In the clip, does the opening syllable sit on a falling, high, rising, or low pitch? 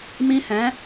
high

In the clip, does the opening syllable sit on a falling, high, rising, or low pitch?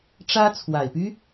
high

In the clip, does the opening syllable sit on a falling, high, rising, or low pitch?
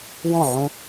falling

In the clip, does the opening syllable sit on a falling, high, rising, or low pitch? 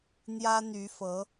high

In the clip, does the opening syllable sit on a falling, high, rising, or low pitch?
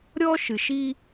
high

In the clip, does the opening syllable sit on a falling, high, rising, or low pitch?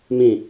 falling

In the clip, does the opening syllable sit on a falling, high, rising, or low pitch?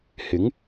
rising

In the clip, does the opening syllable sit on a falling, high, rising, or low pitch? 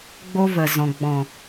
high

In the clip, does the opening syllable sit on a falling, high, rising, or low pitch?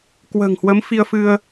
low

